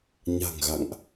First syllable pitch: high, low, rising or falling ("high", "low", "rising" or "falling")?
low